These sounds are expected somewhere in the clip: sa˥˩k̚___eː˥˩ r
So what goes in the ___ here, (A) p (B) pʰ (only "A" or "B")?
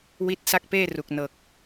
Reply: A